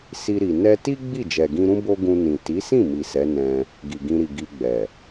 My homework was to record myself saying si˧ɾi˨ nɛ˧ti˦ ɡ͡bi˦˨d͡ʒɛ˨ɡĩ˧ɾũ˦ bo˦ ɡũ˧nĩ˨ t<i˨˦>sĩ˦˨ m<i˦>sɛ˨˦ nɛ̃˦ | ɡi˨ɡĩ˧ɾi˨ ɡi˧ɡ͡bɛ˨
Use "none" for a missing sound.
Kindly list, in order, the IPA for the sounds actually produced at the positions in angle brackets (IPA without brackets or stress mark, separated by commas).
i˨˦, i˨